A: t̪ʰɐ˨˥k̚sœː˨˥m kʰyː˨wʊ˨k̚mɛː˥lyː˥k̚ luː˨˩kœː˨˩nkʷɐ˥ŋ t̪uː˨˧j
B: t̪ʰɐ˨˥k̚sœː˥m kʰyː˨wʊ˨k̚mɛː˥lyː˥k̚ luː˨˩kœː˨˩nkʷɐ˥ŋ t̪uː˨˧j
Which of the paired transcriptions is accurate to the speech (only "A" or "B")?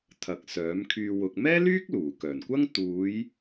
A